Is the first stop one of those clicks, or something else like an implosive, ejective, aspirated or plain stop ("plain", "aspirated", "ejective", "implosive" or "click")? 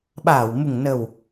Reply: implosive